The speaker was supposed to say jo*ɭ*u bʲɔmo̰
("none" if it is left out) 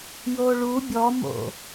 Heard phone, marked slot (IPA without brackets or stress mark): ɭ